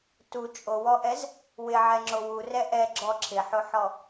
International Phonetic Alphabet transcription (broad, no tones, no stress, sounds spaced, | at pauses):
t u t͡ʃʼ o w ɔ ʔ ɛ z | w ɪ ʕ ɛ ŋ͡ǁ o w u r ɛ ʔ ɛ ɡ͡ǁ ɔ ǁʰ ɪ ħ o ħ ɔ